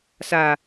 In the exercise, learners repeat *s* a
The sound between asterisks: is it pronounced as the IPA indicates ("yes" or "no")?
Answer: yes